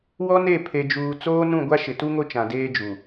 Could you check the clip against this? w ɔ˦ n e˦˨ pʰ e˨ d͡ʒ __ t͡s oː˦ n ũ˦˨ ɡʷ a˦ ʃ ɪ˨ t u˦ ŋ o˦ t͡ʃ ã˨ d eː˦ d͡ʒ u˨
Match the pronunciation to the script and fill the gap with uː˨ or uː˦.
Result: uː˨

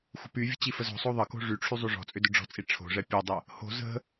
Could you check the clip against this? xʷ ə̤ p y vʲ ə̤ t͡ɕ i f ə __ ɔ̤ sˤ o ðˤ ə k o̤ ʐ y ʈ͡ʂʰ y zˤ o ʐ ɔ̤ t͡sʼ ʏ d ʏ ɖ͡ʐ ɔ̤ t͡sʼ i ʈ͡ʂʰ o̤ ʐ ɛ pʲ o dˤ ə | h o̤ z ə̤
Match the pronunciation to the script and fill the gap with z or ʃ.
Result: z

